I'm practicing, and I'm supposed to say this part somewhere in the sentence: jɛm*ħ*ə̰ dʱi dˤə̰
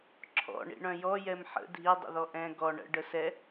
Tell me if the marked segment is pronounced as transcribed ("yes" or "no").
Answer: yes